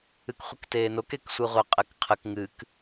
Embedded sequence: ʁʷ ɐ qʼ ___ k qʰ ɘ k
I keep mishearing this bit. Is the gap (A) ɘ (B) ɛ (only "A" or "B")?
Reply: B